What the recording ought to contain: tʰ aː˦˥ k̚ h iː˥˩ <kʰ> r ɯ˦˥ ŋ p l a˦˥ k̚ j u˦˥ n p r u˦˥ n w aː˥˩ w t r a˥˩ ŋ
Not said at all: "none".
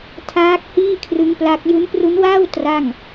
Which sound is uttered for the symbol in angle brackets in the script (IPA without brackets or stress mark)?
kʰ